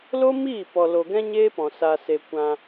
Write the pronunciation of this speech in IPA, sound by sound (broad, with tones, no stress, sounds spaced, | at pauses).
l o˦ m iː˦˨ p ɔ˨ l o˨ ɡ ɛ̃˦ ɲ e˦ p ɔ̃˨ s a˨ s e˨ kʷ ã˧